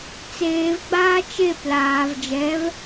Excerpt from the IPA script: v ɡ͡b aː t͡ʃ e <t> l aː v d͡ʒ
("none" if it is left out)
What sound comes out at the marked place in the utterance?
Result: p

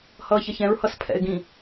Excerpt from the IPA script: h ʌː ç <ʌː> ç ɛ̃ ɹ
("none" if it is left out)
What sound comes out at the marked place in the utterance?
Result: ʌ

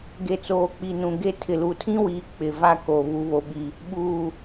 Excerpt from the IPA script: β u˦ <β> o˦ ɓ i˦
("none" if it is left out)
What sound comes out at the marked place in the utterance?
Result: β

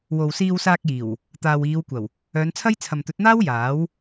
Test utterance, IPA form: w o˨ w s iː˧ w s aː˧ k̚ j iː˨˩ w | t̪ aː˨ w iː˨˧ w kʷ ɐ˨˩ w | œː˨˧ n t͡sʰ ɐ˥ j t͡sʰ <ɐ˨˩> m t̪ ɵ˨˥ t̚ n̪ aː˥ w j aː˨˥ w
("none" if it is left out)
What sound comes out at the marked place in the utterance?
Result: ɐ˨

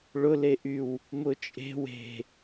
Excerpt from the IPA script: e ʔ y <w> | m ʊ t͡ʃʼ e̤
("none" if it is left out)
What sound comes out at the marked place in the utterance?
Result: w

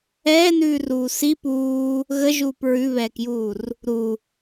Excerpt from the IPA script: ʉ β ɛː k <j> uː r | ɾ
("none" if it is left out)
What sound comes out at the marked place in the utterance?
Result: j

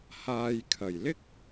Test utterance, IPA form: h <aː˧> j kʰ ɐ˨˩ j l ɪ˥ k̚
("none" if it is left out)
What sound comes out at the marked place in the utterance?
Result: aː˧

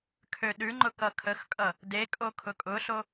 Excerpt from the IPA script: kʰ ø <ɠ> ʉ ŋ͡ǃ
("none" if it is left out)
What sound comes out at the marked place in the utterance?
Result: ɗ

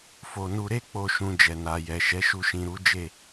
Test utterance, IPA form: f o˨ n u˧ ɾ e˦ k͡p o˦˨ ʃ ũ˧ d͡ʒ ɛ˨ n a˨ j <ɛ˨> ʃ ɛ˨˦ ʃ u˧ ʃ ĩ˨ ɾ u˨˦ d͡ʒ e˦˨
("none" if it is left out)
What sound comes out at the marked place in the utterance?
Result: ɛ˨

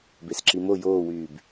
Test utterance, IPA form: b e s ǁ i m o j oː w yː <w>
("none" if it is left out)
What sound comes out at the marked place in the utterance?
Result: b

